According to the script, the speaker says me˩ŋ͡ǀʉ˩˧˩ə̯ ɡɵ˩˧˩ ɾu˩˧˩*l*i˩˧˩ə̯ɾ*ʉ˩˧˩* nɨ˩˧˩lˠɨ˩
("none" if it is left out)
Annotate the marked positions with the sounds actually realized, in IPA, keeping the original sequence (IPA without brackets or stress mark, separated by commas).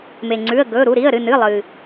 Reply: ɾ, ɨ˩˧˩